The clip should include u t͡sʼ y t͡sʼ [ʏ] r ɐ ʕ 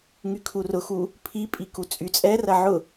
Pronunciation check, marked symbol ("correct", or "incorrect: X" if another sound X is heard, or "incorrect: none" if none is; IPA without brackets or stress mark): incorrect: ɛ